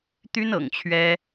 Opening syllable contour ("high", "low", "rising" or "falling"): high